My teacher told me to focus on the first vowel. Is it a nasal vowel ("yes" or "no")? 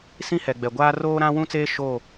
yes